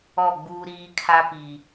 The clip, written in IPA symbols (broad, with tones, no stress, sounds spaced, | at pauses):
ɔ˦˨ ɡ͡b uː˦ ɾ iː˦ kʰ a˦ p i˨